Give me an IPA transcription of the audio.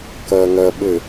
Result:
kɐːŋɐːɓɘ

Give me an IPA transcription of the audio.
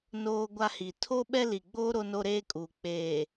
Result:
noː˦ɡʷa˦hi˨ tʰo˦ɓɛ˦li˨ɡ͡boː˦ ɾo˦no˦ɾeː˦kʼuː˨ k͡peː˨

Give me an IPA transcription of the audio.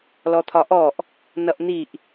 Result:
lɔt̪ʰɒʔɔʔ | nʌʔn̪iʔ

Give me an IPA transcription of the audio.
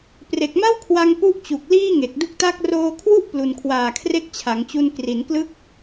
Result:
pre˨˩k̚ma˥˩wkʰwa˧ŋ pu˥˩ʔ t͡ɕu˨˩k̚ liː˥˩ŋe˨˩k̚du˦˥k̚ta˥˩k̚ roː˧kʰwu˥˩ʔ plu˧n kʰwaː˨˩kʰre˦˥k̚t͡ɕʰa˩˦ŋt͡ɕu˧n kri˩˦nklɯ˦˥k̚

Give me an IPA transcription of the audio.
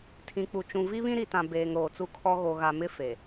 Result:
tʰĩ˨k͡pu˨ t͡ʃũ˨vi˦βĩ˦ ɾi˨tã˨ beː˨ŋ ɾoː˨t͡su˦kʰɔ˦ ɣo˨ɣa˨mɪ˦ fe˨

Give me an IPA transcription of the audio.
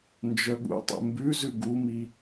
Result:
nd͡ʒœɠṵtˤḛ mbʉzʉ ɡumi

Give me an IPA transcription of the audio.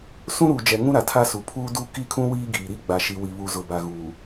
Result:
sũ˦ɾuː˨d͡ʒɛ˨ ŋũ˦ɾa˨tʰa˦su˨ pʰuː˦du˦ ki˦˨kʰũ˦ wiː˦ɡiː˨ɾi˦ ɡ͡ba˨ʃi˨wi˨βu˨ zʊ˨ba˨ɣuː˨

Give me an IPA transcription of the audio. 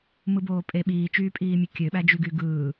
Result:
mɯboːpʼe ɓiːt͡ʃyːpʼiːmʲɯ kʲøɓæd͡ʒyɡy ɡɯː

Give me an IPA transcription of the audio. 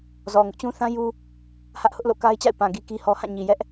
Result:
zɔ˨ŋʊ˦ʔt͡ɕũ˦ θã˦ ju˦ | hä˦ʔhʊ˦ʔlo̰˦˨ ka˦ɪ̯t͡ɕa̰˦˨ɪ̯ pã˨ ɡi˦ki˦hɔ˦ hã˦˨ɲi˨ jɛ˦ʔ

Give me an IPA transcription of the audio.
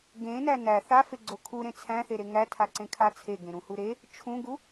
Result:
ɡẽnæ næ θafeɡ͡ǀo kʰuɾẽ t͡sʰæ̃θeɾe ŋætʰaǀẽkʰa t͡sʰeɡẽɾũhu ɾe | t͡ʃʰũɡu

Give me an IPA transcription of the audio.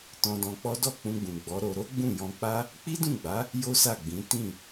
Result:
tɔ̃˧dɔ̃˧k͡pɔ˦ dɔ˦˨k͡pũ˧ɡ͡bũ˨ ɡ͡bɔ˨˦ɾo˧ ɾo˦ɡ͡bũ˦˨jɔ̃˧k͡pa˦ | k͡pi˦dũ˦˨ɡ͡ba˨˦ | jo˦sa˦˨ɡ͡bĩ˨˦ tĩ˦˨

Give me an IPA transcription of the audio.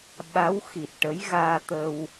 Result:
ɓa˧˥wxi˨˩t̚ʈə˧˥j ɣaː˧t̪ə˧w

